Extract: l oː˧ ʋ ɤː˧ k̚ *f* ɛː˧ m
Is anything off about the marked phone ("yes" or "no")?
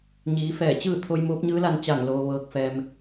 no